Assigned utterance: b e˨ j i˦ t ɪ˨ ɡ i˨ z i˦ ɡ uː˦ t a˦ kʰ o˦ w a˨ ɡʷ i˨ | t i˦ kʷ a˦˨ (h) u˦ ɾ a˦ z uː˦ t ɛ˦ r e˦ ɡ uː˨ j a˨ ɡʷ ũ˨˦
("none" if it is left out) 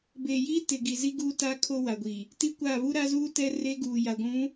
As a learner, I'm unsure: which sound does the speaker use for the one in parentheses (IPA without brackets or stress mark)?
β